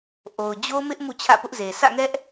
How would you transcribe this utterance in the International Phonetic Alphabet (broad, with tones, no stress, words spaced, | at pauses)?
ʔo˨ʊ̯d͡ʑo˦mɪ˦ʔ mṵ˦˨t͡ɕʰä̰˦˨pʊ˦ʔze˨ sä̰˦˨ŋɛ˦ʔ